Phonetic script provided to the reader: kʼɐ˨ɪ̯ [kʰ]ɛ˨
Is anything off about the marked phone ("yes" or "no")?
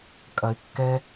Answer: yes